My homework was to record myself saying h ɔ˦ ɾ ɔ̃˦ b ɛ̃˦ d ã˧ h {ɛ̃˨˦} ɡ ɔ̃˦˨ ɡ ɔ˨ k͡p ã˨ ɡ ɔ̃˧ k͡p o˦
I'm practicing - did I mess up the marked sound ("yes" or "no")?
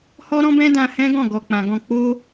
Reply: yes